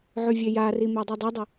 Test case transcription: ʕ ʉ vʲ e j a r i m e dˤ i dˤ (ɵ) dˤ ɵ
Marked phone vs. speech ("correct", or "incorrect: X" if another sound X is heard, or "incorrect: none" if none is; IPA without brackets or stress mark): correct